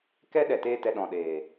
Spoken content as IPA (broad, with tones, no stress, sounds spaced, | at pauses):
k ɛ˦ ɗ ɛ˨ t eː˧ t ɛ˨ ɗ ɔ̃˨ ɗ eː˨